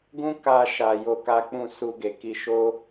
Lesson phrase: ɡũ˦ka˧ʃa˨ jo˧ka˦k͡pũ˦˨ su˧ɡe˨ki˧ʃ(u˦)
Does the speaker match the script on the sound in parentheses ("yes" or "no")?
no